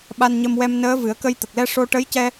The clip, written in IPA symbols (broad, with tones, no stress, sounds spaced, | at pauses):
ɓ a˧ n ɲ ə˧ m w ɛ˧ m n əː˧˥ v ɨ˨˩˦ ə̯ k ə˧ j t̪ ə˨˩ k̚ l ɛ˧ ʂ o˧ ʈ ə˧˥ j c ɛ˧